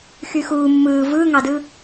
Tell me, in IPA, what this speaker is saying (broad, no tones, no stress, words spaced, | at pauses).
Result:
xyxuː mːɯː vɯːŋɑdɯ